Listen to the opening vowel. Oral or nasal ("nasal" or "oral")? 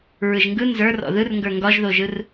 oral